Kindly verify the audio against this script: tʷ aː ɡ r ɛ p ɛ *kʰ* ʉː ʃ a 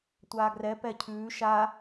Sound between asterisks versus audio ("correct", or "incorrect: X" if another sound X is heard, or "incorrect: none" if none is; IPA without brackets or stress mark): incorrect: cʰ